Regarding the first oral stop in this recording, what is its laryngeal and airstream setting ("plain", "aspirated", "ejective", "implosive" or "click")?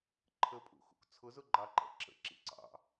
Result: click